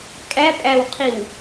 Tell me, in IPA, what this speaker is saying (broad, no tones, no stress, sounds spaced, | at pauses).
kʼ æ pʼ æ w qʰ i w